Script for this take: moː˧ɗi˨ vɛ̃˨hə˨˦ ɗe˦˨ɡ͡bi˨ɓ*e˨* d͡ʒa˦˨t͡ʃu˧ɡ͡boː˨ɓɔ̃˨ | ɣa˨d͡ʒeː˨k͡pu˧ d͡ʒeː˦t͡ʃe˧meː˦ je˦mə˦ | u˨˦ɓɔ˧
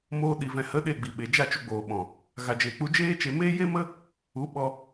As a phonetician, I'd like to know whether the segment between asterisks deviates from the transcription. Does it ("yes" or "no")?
no